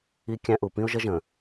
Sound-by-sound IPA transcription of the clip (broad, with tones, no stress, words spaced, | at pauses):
i˦kʲæ̃˦ʔu˨ pĩ˦ʊ̯ʒə˦ʒə̃˨